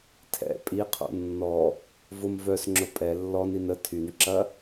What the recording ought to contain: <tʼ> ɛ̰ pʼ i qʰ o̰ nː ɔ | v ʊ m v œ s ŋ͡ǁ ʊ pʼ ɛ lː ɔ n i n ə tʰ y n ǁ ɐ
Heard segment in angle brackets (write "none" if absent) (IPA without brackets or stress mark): tʰ